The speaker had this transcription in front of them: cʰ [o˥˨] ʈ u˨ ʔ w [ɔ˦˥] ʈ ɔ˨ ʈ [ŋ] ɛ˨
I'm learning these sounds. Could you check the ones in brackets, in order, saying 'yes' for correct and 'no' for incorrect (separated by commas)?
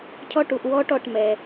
no, yes, no